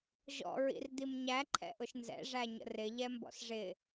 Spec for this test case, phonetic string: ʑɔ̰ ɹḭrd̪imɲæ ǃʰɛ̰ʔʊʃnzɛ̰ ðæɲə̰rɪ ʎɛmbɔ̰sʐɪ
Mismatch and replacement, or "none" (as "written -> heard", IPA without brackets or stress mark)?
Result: ð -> ʐ